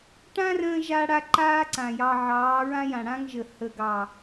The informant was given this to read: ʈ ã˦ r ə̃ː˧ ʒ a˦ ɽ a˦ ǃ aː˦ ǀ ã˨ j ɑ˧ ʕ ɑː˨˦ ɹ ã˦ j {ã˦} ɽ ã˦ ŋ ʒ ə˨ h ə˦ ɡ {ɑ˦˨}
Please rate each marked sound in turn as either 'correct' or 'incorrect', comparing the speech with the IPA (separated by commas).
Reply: incorrect, correct